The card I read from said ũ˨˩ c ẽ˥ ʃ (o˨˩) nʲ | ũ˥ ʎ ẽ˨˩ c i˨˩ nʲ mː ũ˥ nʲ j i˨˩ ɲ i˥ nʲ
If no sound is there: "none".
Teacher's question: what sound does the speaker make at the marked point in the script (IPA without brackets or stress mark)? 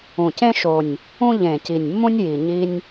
o˨˩